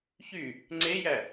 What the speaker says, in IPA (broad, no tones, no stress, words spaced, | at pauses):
çy | ŋ͡ǀejæ